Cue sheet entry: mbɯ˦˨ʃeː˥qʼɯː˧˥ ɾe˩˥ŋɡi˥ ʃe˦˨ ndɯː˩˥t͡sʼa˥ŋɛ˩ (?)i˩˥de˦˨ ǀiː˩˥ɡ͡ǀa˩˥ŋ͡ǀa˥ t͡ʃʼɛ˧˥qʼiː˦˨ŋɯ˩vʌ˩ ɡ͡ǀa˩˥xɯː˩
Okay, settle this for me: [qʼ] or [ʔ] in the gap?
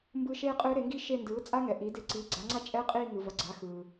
ʔ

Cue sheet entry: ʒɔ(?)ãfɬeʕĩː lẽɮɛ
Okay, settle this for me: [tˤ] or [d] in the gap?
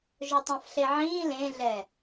tˤ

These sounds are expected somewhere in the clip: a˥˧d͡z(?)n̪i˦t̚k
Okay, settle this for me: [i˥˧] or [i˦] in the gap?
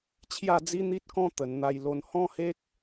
i˦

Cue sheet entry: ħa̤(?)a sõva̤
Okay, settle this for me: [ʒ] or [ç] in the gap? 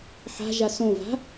ʒ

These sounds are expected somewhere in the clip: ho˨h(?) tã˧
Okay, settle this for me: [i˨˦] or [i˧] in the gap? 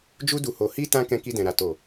i˧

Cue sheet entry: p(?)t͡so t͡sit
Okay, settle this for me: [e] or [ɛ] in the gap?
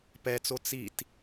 ɛ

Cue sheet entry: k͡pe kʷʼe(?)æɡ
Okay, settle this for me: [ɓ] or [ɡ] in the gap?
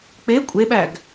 ɓ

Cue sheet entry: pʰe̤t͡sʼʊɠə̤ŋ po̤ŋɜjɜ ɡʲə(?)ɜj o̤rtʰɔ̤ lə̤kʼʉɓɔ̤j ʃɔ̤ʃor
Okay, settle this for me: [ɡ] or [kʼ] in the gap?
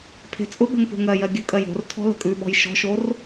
kʼ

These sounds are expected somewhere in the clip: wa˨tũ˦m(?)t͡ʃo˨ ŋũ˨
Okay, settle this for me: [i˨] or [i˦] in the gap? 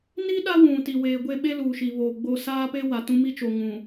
i˦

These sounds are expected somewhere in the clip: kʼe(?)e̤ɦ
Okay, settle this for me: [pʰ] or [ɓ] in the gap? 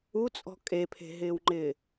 pʰ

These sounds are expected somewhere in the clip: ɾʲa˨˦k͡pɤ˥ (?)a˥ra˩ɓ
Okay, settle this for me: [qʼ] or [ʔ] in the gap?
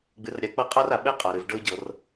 qʼ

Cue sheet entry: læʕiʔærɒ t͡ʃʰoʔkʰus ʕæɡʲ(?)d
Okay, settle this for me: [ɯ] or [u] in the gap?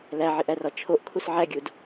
u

